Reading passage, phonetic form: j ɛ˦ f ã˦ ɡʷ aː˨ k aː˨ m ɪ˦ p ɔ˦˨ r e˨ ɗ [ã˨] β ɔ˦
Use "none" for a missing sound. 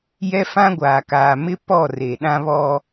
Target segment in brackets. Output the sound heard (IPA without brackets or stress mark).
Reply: ã˦